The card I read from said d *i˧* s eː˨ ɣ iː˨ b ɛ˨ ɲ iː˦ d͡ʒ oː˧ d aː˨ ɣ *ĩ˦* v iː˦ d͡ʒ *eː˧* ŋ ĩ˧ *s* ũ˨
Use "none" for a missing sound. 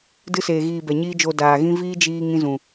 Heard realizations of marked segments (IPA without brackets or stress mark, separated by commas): ɨ˧, ĩ˦, iː˧, z